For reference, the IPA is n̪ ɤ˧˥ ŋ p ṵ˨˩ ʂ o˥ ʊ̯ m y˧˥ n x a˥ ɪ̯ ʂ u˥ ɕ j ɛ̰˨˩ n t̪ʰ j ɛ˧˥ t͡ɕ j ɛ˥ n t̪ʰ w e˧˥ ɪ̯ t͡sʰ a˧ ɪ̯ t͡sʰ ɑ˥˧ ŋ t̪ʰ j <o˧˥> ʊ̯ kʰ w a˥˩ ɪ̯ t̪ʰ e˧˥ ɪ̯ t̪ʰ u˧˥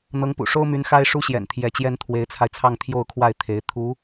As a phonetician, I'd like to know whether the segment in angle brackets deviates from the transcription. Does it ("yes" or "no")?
yes